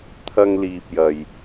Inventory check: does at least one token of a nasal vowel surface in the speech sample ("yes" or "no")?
no